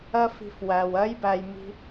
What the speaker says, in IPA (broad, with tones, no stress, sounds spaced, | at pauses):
ɜ˦ f i̤˧ f w æ˨ w ɜ˦ j b æ˧ j m i̤˦